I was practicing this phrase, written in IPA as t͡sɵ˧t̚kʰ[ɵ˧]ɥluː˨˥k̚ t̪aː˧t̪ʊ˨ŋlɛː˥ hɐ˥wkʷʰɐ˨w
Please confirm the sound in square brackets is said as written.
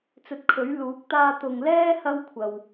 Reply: no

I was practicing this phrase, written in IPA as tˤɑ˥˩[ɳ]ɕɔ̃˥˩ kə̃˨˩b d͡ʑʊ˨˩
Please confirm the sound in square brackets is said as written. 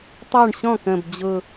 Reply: yes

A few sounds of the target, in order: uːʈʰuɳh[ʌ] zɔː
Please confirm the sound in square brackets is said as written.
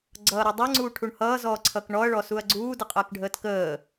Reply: no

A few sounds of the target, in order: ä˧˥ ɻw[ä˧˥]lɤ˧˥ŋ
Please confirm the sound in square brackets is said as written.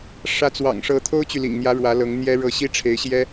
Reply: yes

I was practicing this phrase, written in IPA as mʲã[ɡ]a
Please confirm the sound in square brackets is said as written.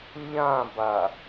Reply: no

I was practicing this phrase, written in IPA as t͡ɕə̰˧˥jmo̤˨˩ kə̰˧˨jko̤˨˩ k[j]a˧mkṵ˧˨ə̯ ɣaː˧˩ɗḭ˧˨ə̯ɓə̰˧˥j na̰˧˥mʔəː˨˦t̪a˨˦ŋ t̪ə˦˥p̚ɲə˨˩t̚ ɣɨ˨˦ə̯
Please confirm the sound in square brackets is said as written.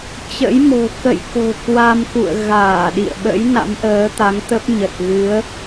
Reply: no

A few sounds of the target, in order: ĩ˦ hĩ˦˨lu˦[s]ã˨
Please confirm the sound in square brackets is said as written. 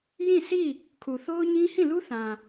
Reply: no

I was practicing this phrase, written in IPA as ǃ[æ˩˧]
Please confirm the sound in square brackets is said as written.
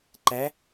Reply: no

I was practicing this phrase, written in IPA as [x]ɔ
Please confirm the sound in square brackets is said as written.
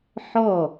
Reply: no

